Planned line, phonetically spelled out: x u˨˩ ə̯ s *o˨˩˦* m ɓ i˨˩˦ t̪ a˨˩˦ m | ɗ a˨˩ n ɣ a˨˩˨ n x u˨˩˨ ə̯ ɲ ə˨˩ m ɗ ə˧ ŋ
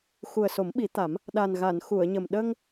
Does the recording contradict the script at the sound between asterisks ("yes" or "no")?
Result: no